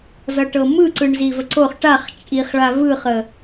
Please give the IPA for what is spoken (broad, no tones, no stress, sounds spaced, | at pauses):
z ʌ ʈ ɤ m ɯ ǀ ɯ ɳ z i v ə ǀ o χ ʈ a χ t͡ʃʼ i χ ɭ a v ɯ χ ə